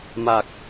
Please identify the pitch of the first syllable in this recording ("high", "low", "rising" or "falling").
low